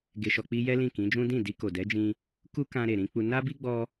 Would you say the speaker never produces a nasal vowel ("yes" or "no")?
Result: no